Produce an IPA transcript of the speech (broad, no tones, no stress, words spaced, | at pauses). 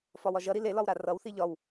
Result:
fɒwɒʒʌɾi lelɒw ɾarʌwθi ʎɒw